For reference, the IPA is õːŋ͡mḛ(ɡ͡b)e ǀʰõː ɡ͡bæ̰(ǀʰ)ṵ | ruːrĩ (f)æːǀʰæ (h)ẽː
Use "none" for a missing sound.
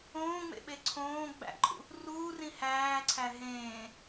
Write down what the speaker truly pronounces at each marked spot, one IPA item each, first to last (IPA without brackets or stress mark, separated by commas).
ɓ, ǃʰ, h, ɦ